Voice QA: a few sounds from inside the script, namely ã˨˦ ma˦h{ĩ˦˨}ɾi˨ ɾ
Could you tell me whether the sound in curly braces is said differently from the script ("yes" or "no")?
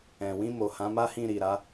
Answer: no